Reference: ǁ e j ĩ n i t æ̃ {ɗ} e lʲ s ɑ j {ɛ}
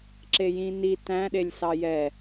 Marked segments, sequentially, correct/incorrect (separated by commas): correct, correct